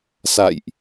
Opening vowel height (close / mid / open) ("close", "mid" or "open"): open